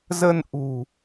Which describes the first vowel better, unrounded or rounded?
unrounded